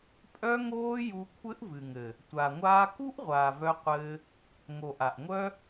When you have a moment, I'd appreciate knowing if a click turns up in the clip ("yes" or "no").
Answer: no